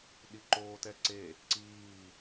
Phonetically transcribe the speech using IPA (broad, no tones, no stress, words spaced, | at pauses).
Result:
ɗiǃoːtɛǀe | ǀiː